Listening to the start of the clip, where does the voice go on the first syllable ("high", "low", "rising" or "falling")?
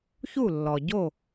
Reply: falling